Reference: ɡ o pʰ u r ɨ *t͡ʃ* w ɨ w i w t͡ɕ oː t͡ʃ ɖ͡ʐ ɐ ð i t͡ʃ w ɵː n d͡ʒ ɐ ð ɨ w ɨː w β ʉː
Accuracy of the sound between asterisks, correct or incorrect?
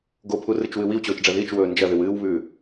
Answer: correct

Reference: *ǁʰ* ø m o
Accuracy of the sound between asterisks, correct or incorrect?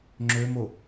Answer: incorrect: ŋ͡ǁ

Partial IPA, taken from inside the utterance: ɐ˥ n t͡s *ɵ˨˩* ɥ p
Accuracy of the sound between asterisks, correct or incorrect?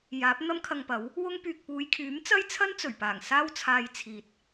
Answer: correct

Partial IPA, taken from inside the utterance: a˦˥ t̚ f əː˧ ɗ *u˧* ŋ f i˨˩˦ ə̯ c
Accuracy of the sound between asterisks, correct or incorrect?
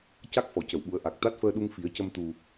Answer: correct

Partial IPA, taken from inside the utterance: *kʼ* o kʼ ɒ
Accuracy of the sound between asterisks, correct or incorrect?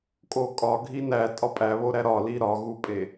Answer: correct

